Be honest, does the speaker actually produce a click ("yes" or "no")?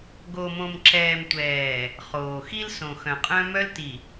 yes